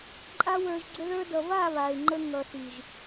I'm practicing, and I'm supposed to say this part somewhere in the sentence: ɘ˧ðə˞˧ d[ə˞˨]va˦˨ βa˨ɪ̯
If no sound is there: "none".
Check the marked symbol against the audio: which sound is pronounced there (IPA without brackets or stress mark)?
ʌ˨